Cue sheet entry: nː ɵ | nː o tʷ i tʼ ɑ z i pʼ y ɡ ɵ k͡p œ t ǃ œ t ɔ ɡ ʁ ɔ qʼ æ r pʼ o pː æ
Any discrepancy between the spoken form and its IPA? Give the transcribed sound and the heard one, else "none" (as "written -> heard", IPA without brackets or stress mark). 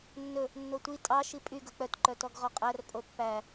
z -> ʃ